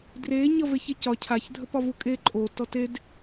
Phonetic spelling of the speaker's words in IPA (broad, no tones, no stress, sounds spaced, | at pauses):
d r e ɲ ʌ v e ç e c ɒ cʰ a ç dʱ ə p ɒ v u kʼ e ǃʼ o t ɔ t e d